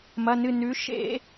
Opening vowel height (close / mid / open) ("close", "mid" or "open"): open